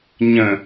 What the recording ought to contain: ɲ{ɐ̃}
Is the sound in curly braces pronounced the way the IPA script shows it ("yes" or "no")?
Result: no